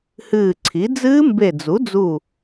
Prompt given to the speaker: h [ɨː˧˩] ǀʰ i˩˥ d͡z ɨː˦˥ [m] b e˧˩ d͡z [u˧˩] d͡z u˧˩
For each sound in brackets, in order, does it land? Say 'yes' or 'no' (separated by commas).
yes, yes, no